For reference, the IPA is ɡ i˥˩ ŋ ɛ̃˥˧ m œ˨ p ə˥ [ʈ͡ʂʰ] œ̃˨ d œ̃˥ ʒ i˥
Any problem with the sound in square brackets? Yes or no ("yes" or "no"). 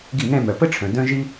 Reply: no